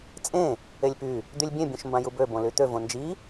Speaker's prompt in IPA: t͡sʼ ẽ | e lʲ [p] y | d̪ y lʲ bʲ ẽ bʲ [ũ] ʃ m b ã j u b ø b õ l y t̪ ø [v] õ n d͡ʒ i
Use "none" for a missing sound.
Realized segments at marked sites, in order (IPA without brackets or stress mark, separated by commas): p, ũ, v